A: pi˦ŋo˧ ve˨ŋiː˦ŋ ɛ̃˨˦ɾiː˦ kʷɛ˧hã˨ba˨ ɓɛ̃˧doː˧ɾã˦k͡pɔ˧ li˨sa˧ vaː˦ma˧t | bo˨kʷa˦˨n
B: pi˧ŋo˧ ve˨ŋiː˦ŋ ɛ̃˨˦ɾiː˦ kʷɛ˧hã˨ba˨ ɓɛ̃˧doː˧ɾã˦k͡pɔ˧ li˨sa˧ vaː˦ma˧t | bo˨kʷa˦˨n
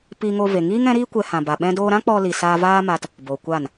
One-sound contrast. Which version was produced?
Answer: B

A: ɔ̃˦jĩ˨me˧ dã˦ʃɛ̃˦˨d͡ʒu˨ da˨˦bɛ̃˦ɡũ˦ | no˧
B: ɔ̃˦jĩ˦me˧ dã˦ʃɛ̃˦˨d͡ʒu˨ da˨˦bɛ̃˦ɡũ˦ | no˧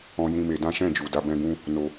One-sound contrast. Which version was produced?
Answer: B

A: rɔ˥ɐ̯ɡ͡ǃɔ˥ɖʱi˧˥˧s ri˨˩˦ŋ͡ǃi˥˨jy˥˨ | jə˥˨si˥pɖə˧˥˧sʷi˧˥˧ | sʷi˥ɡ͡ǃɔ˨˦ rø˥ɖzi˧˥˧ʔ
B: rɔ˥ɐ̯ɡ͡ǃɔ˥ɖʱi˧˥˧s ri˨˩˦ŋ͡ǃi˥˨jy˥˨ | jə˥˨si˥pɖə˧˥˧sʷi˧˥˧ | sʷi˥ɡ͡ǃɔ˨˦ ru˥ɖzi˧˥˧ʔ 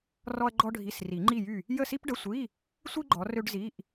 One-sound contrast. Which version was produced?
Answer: A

